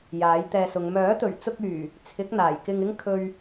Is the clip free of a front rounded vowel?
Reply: no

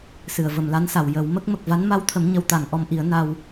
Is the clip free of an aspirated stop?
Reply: no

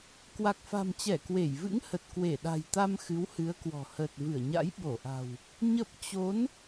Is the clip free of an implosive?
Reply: no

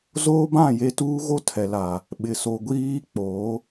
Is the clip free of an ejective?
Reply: yes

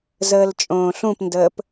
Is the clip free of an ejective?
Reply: no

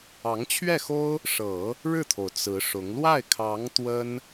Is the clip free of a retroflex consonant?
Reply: no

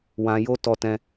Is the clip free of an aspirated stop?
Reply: yes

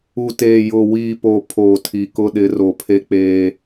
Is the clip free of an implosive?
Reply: no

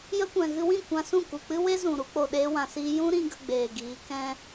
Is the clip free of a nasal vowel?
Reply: no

